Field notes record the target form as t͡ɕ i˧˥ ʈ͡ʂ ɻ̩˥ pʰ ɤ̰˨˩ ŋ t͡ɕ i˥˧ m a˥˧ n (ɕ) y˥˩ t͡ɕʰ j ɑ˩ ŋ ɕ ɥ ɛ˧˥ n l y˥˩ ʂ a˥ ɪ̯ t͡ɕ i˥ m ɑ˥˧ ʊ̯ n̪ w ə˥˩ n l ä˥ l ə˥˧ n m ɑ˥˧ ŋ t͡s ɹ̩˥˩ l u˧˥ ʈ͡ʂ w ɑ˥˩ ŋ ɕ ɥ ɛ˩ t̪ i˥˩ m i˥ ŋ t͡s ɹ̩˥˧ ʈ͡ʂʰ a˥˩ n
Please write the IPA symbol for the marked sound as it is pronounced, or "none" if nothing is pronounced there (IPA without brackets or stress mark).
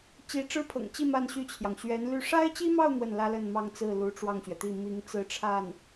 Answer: ɕ